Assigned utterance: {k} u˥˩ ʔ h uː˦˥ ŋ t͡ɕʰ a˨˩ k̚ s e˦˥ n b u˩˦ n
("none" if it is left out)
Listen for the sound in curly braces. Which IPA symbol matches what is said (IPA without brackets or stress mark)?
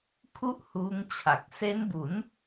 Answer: kʰ